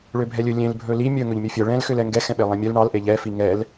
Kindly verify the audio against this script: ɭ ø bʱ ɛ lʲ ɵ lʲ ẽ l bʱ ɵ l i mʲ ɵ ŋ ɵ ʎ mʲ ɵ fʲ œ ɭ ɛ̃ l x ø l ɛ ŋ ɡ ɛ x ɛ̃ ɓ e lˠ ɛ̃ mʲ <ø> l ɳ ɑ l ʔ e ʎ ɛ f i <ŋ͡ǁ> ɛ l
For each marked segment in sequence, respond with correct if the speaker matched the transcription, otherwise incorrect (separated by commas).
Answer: incorrect, incorrect